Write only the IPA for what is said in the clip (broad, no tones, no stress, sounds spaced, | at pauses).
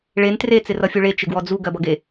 ɭ e n t r e t͡s ɪ r ʌ fʲ u ɭ e t͡ʃ ɪ ɡ w ɔ d͡z u ɡ ɜ b ʌ ɡ e